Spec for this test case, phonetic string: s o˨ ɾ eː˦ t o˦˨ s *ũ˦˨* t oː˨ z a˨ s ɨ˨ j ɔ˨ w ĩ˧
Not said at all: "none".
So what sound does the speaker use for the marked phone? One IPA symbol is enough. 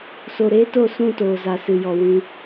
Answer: ũ˦˨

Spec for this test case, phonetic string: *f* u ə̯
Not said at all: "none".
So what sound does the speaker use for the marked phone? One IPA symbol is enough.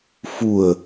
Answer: f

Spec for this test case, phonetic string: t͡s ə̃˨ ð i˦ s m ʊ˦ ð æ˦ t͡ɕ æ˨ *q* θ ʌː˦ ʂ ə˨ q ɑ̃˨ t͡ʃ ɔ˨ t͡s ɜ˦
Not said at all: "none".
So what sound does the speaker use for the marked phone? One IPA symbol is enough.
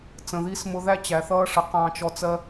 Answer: none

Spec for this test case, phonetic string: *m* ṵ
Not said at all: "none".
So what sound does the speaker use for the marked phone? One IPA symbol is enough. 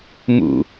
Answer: m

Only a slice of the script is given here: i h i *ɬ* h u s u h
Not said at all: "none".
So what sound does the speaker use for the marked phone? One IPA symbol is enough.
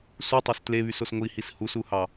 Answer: s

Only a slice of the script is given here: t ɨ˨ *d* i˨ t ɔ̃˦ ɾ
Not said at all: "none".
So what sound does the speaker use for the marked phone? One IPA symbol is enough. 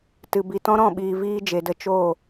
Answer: b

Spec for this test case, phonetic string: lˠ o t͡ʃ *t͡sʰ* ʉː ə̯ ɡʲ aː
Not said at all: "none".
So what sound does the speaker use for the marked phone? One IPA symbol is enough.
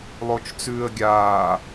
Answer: t͡s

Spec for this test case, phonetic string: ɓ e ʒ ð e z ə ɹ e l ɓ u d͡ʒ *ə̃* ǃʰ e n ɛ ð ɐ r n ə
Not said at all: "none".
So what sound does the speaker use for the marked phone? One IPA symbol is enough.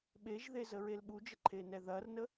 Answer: ə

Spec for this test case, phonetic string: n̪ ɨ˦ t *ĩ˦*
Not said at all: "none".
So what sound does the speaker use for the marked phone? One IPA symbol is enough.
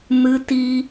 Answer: i˦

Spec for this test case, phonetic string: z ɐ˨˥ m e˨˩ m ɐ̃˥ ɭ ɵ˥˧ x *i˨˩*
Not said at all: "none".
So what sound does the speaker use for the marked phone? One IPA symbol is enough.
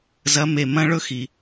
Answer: i˨˩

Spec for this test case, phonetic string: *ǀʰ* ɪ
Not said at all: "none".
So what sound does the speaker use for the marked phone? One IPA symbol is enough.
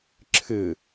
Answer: ǁʰ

